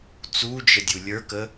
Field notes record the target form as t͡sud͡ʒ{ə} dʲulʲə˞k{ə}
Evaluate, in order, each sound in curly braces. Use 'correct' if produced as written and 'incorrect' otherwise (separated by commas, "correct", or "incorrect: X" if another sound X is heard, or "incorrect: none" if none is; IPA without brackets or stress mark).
correct, correct